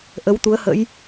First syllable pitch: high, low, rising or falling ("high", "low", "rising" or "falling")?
rising